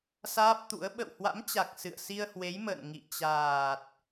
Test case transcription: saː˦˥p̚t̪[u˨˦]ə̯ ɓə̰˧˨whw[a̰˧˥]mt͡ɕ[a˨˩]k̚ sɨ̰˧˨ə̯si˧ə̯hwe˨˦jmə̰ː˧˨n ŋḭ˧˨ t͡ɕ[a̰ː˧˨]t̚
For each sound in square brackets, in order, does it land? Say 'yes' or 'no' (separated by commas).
no, yes, yes, no